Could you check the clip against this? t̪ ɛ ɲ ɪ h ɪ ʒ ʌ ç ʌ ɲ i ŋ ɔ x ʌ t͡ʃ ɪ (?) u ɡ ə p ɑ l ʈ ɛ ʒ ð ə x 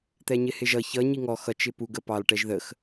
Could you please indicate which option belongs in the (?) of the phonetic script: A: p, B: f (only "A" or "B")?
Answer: A